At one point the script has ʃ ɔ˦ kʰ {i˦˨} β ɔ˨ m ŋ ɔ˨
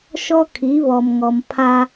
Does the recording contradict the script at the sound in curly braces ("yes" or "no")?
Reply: yes